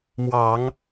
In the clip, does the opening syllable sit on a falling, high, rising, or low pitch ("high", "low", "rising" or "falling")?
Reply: low